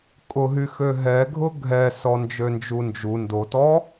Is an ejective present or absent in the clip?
present